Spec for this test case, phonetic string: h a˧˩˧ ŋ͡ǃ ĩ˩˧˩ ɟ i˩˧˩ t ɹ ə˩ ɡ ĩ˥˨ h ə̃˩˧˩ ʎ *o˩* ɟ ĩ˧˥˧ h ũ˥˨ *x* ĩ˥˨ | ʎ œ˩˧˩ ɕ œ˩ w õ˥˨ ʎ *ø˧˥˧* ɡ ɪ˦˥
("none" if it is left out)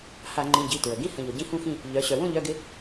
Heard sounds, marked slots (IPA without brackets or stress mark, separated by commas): o˩, x, œ˧˥˧